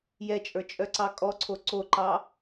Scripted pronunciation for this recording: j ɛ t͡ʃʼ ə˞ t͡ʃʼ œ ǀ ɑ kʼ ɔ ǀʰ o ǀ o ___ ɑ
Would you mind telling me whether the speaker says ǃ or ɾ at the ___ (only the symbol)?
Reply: ǃ